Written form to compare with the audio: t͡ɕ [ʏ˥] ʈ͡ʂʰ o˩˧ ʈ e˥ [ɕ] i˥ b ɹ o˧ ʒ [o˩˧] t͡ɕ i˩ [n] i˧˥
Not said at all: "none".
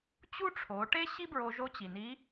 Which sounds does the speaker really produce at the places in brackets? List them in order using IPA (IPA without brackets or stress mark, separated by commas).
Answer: u˥, ɕ, o˧˥, n